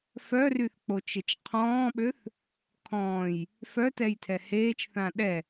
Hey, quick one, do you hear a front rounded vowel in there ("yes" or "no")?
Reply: yes